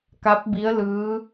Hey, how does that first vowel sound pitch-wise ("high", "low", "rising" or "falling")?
rising